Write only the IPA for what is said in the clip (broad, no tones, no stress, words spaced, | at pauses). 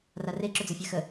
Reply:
rare ǁɵd͡zɤfʲaxə